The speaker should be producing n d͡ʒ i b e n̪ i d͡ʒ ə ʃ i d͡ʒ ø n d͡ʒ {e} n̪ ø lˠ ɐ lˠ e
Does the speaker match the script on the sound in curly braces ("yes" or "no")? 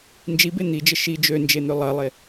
yes